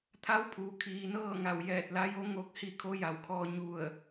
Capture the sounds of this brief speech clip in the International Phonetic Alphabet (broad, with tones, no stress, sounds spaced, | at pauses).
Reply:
t̪ʰ a˧˥ w pʰ uː˩ kʰ iː˩ n ɤː˥˨ ŋ a˧˩ w j ɛː˧˩ t̚ l a˧˥ j o˧˥ ŋ o˧˥ k̚ h i˧ kʰ o˧˥ j a˩ w kʰ ɔː˧ ɲ u˧˩ ə̯